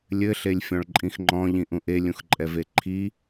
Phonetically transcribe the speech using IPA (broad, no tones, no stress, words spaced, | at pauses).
lʲɘ ɬelʲfʲɔ̃ɭǃʼĩxŋ͡ǃɔ̃ ʎĩʔũʔe lʲũxǃʼɛveǃʰi